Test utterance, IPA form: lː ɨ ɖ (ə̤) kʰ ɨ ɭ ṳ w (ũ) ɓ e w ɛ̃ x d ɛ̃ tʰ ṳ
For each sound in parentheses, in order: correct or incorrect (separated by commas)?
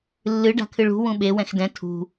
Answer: incorrect, correct